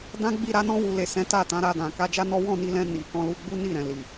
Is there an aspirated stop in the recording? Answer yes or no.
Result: no